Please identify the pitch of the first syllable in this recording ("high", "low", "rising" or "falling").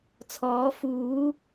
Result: rising